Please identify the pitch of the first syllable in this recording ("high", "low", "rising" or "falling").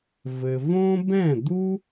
low